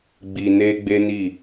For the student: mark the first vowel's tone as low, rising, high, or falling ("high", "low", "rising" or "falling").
low